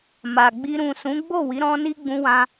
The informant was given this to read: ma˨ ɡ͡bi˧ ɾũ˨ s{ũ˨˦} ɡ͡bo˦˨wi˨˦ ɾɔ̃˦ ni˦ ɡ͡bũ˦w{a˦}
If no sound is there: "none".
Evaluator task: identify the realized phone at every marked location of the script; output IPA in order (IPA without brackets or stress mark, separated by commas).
ũ˨˦, ã˦